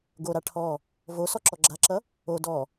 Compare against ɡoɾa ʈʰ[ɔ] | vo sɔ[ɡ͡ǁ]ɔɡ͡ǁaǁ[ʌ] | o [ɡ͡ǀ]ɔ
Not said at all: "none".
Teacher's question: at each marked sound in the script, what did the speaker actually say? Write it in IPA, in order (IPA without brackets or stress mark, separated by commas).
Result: ɔ, ǁ, ʌ, d